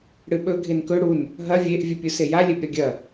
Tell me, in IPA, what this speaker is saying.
ɽ ɨ ɓ ɵ ɡʱ e n k ɵ ɽ u n | ɦ ɐ vʲ e ʔ vʲ ɨ pʲ u s e j a lʲ e b ɾʲ ɐ ɡʲ ɐ

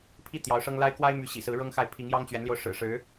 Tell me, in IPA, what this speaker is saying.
pʰ i˥˩ t̪ j ɑ˧˥ ʊ̯ ʂ ɤ˥ ŋ l a˥ ɪ̯ k w a˥ ɪ̯ m y˧˥ ɕ ḭ˨˩ s ɹ̩˧˥ ɻ ɤ˥ ŋ x a˥˩ ɪ̯ pʰ i˧˥ ŋ j ɑ˥ ŋ t͡ɕ ɥ ɛ˧˥ n l j o˧ ʊ̯ ʂ ɻ̩˨˩ ʂ ɻ̩˧˥

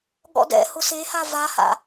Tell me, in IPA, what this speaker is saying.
ɠ ɔ̰ d ɛ̰ h ʊ s e h a v a h a̰

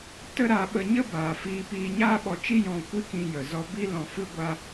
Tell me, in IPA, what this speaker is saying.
t ə˦ ɾ a˨˦ ɓ ə˧ ɲ ə˦ b aː˨ f iː˧ p iː˧ ɲ aː˦ ɓ ɔ˧ t͡ʃ i˦ j ɔ̃˧ kʷ i˦ k ĩ˧ j ə˨ z ɔ˧ b i˦ l ɔ̃˧ f ɨ˦ ɡʷ a˦

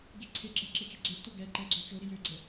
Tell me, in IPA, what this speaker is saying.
ɡ i ǀʰ e ɡ͡ǁ ɛ ǁ e t͡ʃ i ɡ͡ǀ ø ʔ t o ɡ ɛ ǃ ɛ ɡ͡ǀ o t͡ʃ o ɾ i j ø ɡ͡ǀ ɛ

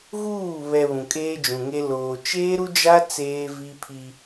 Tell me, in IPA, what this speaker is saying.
ɣ uː˦˨ β ɛ˨ β ũ˨ kʼ eː˦ d͡ʒ ũ˨ ŋ e˦ l oː˨ t͡ʃ eː˦ ɾ u˦ d͡ʒ a˦ t͡s eː˦ v i˦ pʰ i˦

